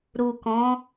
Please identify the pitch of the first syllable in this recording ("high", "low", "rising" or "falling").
low